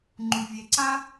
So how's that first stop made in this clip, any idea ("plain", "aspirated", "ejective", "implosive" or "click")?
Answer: click